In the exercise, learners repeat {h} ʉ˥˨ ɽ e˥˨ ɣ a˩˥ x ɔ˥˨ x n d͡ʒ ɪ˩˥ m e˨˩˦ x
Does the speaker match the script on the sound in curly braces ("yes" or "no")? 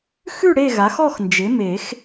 no